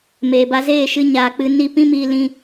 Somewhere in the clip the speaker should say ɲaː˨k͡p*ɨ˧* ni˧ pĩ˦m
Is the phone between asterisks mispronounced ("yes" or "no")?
no